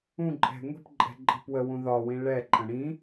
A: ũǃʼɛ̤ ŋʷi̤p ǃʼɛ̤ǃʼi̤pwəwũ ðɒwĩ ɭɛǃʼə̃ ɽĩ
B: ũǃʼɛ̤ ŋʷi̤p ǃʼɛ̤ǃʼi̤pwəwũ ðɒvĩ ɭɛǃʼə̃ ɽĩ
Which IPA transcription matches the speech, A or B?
A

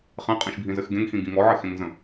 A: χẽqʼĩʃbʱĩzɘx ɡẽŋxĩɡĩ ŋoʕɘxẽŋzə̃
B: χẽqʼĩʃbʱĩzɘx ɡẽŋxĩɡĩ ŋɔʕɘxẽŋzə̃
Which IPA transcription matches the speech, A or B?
B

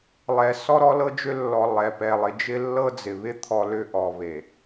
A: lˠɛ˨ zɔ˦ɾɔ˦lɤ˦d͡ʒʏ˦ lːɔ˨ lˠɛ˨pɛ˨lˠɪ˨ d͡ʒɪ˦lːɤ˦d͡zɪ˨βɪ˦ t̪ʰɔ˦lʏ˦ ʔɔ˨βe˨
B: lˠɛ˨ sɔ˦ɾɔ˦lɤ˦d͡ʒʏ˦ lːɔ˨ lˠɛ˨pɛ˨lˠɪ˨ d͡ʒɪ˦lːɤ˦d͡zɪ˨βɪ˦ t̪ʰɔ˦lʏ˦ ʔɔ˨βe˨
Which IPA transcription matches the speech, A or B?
B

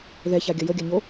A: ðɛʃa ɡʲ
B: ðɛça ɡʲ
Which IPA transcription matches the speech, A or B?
B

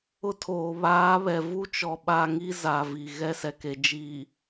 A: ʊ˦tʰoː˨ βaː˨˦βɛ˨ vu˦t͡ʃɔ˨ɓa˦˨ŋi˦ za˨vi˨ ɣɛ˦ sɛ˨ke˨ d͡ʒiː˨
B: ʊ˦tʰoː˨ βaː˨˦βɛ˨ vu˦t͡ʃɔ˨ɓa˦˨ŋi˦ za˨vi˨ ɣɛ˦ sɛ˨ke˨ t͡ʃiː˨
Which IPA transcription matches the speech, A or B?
A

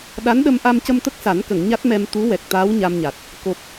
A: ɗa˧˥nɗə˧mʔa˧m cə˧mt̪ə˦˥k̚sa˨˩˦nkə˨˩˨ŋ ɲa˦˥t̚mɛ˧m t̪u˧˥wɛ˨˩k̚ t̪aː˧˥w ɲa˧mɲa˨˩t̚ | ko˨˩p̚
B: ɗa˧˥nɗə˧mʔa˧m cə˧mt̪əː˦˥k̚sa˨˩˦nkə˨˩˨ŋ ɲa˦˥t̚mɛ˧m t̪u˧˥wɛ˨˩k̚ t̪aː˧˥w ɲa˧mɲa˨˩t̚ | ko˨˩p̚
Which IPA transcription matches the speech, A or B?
A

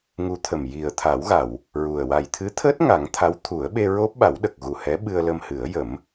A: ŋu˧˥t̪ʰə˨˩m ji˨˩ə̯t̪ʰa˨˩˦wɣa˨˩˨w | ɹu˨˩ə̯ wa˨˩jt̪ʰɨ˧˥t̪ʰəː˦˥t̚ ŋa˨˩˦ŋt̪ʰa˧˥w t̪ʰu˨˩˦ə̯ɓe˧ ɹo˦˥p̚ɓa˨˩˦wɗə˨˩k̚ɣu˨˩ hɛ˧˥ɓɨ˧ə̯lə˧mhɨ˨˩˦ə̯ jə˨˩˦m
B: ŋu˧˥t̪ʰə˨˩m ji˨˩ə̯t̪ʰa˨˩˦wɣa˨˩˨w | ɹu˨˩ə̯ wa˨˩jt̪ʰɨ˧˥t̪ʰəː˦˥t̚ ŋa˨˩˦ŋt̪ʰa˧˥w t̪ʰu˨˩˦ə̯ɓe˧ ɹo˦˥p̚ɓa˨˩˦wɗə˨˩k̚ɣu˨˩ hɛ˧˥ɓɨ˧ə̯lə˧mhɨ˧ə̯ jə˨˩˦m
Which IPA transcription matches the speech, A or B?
A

